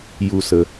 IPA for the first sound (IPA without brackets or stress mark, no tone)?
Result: j